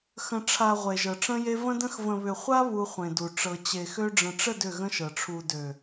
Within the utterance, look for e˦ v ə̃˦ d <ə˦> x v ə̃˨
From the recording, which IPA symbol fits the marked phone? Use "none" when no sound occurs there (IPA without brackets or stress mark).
ə̃˦